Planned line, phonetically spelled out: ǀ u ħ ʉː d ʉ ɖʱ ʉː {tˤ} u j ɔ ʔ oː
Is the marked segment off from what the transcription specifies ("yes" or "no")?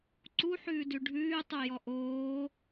no